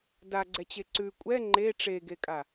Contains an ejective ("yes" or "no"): yes